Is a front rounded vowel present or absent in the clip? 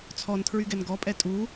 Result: present